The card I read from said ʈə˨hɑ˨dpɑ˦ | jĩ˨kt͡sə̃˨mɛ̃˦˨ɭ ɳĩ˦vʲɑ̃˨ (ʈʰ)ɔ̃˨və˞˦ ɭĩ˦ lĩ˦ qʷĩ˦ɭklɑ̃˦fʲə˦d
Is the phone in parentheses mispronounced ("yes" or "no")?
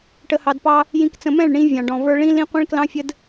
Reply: yes